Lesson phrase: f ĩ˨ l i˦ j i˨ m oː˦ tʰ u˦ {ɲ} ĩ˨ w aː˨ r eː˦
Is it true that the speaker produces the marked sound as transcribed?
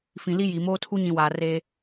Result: yes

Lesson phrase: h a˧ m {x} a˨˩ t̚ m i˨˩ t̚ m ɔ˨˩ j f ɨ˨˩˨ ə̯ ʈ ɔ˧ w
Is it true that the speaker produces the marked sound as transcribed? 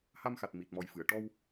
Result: yes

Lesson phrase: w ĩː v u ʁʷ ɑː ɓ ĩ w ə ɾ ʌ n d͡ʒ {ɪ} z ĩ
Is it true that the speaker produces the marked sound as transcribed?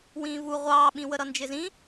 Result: yes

